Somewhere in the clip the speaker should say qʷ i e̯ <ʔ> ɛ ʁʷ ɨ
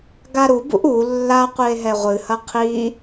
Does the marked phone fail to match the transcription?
yes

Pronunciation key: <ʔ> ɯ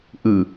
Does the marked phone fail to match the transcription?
no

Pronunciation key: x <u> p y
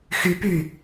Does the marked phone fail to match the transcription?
yes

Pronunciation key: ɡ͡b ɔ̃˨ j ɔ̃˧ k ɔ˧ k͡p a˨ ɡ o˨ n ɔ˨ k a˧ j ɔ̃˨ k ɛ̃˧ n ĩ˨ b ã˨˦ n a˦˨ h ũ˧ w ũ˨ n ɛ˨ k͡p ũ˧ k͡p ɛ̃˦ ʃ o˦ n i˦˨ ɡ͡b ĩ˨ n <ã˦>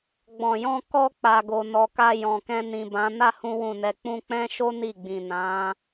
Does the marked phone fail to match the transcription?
yes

